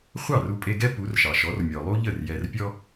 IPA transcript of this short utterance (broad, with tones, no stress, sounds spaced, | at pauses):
χʷ ɑ˥˩ r u˧ pʼ e˧ ɡ ɛ˥ p u˩˥ r ʃ ɑ˩ ʃ ɔ˩˥ r mʲ ɔ˩ lˠ u˥ ʎ ə˥˩ r j ɛ˧ r pʲ ɔ˥